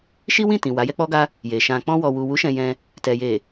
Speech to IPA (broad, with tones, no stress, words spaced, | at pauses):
ʃi˦wĩ˦˨tĩ˨ wa˨˦jɛ˦k͡pɔ˦ɡa˦ | je˨ ʃã˨k͡pɔ̃˧ wɔ˨wu˨wu˨˦ ʃɛ̃˧jɛ̃˧ | tɛ˨je˨